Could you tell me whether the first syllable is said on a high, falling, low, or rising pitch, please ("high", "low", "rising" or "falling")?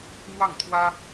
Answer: falling